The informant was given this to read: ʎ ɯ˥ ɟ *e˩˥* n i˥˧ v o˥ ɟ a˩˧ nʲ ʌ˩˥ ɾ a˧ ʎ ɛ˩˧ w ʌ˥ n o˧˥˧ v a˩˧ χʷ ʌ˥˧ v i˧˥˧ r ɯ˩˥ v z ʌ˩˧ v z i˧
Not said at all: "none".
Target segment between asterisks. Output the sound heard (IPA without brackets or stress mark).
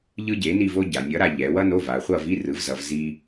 e˩˥